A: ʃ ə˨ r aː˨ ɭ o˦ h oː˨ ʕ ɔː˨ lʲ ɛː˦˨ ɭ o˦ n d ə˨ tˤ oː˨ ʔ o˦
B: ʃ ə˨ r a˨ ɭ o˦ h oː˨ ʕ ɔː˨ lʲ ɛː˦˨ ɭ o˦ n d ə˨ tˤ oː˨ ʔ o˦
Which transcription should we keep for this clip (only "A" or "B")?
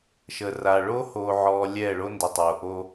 B